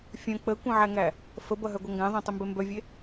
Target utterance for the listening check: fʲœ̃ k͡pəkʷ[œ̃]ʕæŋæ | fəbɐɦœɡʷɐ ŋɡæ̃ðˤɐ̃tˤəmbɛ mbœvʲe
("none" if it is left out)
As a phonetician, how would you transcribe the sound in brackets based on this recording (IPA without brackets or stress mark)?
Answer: œ̃